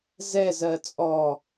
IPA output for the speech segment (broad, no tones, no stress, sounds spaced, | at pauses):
z ɛ z ɜ t͡sʼ ɔ